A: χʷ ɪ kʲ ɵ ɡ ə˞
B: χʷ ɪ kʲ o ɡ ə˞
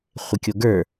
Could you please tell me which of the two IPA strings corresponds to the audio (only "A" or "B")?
B